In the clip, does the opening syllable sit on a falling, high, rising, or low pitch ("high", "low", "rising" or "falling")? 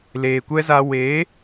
low